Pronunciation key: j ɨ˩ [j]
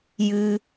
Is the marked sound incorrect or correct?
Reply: incorrect